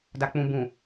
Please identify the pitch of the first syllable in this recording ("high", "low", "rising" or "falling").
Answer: low